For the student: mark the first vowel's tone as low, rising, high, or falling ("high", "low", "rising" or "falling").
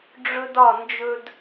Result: high